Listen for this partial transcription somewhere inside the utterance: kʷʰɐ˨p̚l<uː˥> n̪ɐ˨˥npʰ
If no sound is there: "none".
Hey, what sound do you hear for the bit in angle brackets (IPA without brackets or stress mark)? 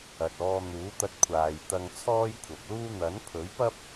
uː˥